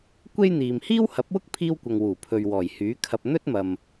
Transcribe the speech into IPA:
kʷ e˥ j n̪ iː˨ m h iː˥ w h ɐ˨˥ p̚ w ʊ˥ k̚ pʰ iː˥ w kʷ ɐ˨ ŋ w uː˨˩ pʰ ɵ˨ ɥ w ɔː˨˩ j h yː˨˥ kʰ ɐ˧ p̚ n̪ ɵ˥ t̚ m ɐ˨ m

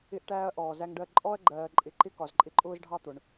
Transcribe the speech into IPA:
ɪ˦ ʔ ʈ æː˦ ɐ̯ ʔ ɔː˨ z æ˦ ŋ ɖ ɜ˦ ǃʼ ɔ˦ ɐ̯ ɡ͡ǃ ɜː˨ ǃʼ ɪ˨ ǃ ɪ˦ k ɒ˨ z ǃʼ ɪ˦ ǃʼ ʊː˦ z ɖʱ ɑ˦ t̪ ʊ˨ ɳ

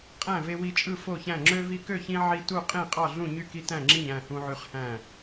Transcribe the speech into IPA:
qʼ æ̃˥˨ v e˦ w i˦ t͡ʃʼ ɯ˥˨ f o˥˨ ç æ̃˥˨ ŋ͡ǁ ø˦ v i˦ k ø˥˨ ç ĩ˦ ʕ i˦ t u˥˨ qʼ ĩ˥˨ qʼ ɑ˥˨ ɮ ũ˥˨ ɲ y˥˨ k i˦ t æ̃˥˨ ŋ͡ǁ i˥˨ ɲ æ̃˥˨ h ũ˦ ʕ y˦ χ h æ̃˥˨

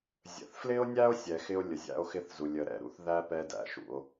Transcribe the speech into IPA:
zʲ ə̰˩ θ f l ɪ˥ o̯ nʲ æ˥ o̯ sʲ ɛ˩ x ɪ˥ o̯ lʲ ə˩ zʲ æ̰˥ o̯ x ɪ˥ θ z u˩ lʲ ə˩ ɾ ɛ̰˩ ɾ ṵ˥ θ ð æ˥ p ɛ˥ d æ̰˩ ʃ ṵ˩ o̯

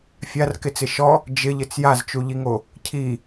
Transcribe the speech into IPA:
fʲ a r k ɪ t͡s ɪ ʃ ɔ | d͡ʒ ɪ ʎ ɪ t͡s j a z t͡ʃ u ʎ i ŋ o | cʰ i

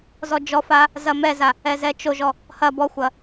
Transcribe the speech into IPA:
z ɔ d͡ʒ ɔ f a | z ɐ m ɛ z a | ɛ z ɛ t͡ʃ o ʒ ɔ | h ɐ b ɔ xʷ ɐ

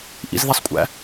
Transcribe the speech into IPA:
ʔ ḭ z ð i sˤ kʷʼ æ̰

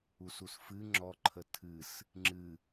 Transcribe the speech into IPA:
u s u s f ɨ ŋ͡ǁ ɔ ǃʰ ə tʰ ɨ s | ŋ͡ǁ ɨ

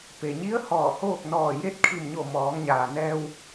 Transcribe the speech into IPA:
p e˩ ɲ i˧˥ ə̯ h ɔː˧˩ h oː˥˨ k̚ n ɔː˧˩ j e˧ t̚ kʰ i˧˩ m ɲ o˧˩ m ɔː˩˧ ŋ ɲ aː˩ n ɛː˧ w

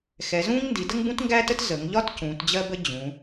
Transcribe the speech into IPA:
x ɛ˩˧ z ũː˥ ŋ n d i˩˧ d ə˥ ŋ b ũ˥ t ŋ ɡ æː˥ t ə˥ t z ə˩˧ ŋ ʎ ɒ˥ t c ũː˩˧ t d͡ʑ ɜ˥ b ə˥ d͡ʑ ũ˩˧

